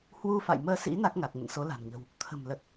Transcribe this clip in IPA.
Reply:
hwu˧fa̰˧˨jməː˧sḭ˧˥ na˦˥k̚ŋa˨˩k̚ŋə̰˧˨n so˨˦la̤˨˩nɲə̤˨˩w | t̪ʰə̤˨˩m lə˨˩t̚

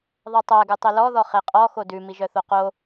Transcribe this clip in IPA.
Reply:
ðˤɛtˤæ ɡʉtˤilɔ ðɔχeqʼɔ xodʉ miʒœθoqo

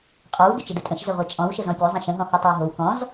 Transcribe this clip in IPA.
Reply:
qʼɔw dʏt͡ʃədətʼə̃ʃ zəʁʷɛt͡ʃʼɔ̃w ʃəzɔ̃pʲo zˤə̃ʃə̃ ɦɔ̃hɔtˤowɦow kɔ̃z

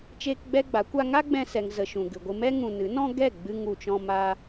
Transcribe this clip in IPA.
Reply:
t͡ʃeː˦kɡ͡bɛ˦ɡ͡ba˨˦kʷa˦ ŋa˦ɡ͡bɛ̃˧sɛ˨ŋzə˨ ʃũ˨ɡɨ˨ɡʷɨ˧ mɛ˦ ŋũ˧ nɨ˨˦nɔ̃˦ɡɛ˦˨ ɡ͡bɨ˧ŋu˨t͡ʃɔ̃˧ ma˧

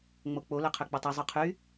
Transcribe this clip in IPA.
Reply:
ŋ͡mok͡po lœqʰøk͡pøtˤe zˤœqʰy

